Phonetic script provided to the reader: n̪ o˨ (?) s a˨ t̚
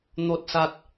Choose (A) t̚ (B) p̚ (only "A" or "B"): A